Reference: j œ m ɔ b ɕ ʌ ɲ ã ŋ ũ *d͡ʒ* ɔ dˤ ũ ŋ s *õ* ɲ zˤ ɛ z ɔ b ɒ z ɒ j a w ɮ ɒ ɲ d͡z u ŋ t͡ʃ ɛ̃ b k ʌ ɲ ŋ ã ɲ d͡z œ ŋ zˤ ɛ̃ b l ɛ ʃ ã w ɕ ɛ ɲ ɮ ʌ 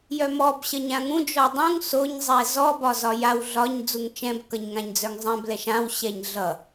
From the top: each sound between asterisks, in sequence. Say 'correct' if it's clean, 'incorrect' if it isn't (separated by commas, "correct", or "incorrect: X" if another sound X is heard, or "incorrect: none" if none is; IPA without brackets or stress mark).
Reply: correct, incorrect: o